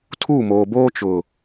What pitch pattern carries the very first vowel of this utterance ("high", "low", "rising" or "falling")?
falling